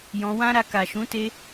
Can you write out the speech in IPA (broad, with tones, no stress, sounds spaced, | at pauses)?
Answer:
j ɔ̃˧ w ã˦ ɾ a˧ k a˨ ʃ ũ˨˦ t e˧